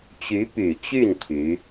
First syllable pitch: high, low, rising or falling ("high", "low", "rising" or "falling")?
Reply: rising